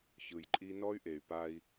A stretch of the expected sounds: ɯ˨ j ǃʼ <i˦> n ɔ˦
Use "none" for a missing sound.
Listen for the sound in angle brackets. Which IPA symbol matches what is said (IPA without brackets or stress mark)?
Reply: i˦